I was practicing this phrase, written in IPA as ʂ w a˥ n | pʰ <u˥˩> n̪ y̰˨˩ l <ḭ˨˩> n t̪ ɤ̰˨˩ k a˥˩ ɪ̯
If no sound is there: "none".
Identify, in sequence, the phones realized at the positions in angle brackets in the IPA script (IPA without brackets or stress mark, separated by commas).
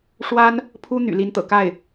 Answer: u˥, i˧˥